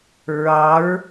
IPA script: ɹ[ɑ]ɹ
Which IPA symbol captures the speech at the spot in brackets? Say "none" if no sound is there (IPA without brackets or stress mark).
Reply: ɑ